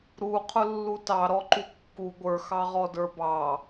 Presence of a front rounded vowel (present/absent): absent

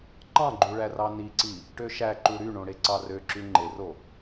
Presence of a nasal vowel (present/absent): present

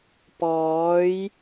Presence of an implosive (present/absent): absent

